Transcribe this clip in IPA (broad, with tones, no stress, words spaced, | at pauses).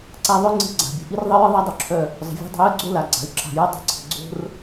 ǀa˧ðˤœ˦ŋ͡ǀi̤˧ ɡ͡ǀa̤˨bʲə̤˨ ʔi˦rðˤə˦jɨ˦ ðˤa˦dˤo˧ǁʰœ˧ | zˤə̤˨vʲo̤˧dˤə̤˧ jɨ˧ɡ͡ǀo˧la˨ ɡ͡ǀa̤˨y̯ǁa̤˨ju˧ dˤi̤˧ǀʰə̤˨ ɡ͡ǀo̤˦r